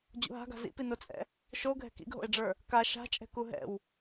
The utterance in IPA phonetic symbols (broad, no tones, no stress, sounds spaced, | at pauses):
d͡ʑ ṵ ɦ a̤ ɡ a̤ z ḭ p i n o t͡sʼ ɛ̰ | ʃ o ɡʱ ɛ̤ k ḭ ɡ ɦ o̰ e̯ ɖ͡ʐ ə˞ | k a ʃ a̤ t͡ʃʼ ɛ̤ k u ɦ ɛ̰ w